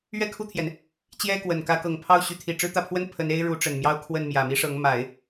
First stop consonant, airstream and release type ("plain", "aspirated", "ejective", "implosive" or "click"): aspirated